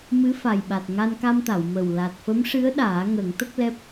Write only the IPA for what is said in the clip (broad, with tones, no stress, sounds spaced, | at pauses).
m ɨ˧˥ f a˨˩ j ɓ a˨˩ t̚ ŋ a˧ n k a˧ m t̪ a˨˩˨ w m ə˨˩ w l a˨˩ t̚ f ə˧˥ m ʂ ɨ˧˥ ə̯ ɗ aː˨˩˦ ŋ ə˨˩˦ ŋ t̪ ə˦˥ k̚ l ɛ˦˥ p̚